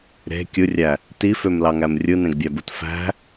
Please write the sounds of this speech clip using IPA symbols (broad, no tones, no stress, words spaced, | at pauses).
ɾe̤ kʲɯrʲæ | tifømlɑŋæm rʲɯnẽɡbʲæbut fæ̤